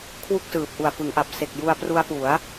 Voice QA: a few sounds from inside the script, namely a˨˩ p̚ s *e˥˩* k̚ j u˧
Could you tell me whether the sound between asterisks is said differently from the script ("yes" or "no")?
yes